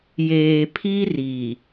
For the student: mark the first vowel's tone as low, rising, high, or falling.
low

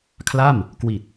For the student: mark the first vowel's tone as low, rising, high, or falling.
falling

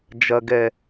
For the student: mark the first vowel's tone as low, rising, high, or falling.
low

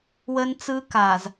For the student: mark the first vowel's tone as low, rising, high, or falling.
high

